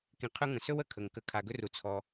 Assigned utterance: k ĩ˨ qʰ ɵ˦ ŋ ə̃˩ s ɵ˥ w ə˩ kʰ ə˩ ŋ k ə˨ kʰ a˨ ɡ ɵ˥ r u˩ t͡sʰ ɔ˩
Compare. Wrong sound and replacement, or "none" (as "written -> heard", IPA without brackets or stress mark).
none